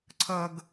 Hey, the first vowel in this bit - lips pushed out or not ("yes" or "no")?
no